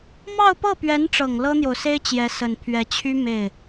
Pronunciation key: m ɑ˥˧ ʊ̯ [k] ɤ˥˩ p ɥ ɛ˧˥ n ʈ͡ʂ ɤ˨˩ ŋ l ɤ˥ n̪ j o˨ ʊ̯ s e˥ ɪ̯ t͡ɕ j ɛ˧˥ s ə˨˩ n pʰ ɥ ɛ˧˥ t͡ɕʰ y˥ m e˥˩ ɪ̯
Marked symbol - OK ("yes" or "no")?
no